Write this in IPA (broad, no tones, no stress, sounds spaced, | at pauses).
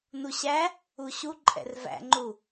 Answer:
n u ɕ æ | u ɕ u ǃʼ ɛ̰ r v æ̰ ŋ͡ǃ u